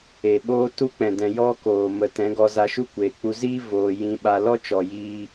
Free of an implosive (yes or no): no